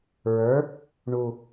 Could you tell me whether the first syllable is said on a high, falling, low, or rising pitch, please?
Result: rising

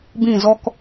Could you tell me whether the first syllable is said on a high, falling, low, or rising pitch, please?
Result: falling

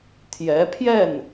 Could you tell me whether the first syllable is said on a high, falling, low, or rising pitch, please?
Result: rising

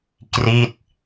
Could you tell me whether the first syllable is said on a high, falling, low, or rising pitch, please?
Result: falling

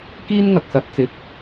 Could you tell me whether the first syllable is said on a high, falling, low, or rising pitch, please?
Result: high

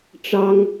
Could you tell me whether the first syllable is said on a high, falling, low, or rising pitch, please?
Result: high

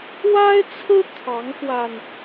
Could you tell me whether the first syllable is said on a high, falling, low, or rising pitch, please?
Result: high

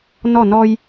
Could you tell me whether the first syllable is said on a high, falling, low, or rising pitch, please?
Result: falling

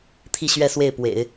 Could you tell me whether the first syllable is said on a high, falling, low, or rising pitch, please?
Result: falling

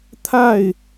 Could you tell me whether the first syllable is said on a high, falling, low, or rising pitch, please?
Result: falling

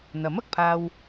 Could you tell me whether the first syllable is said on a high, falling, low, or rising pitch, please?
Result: rising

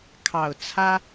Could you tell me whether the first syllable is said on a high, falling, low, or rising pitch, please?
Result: low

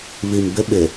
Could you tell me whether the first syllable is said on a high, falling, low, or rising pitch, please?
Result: low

